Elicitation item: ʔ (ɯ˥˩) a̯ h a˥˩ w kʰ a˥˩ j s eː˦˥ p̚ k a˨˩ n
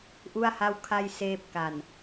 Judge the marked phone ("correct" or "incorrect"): incorrect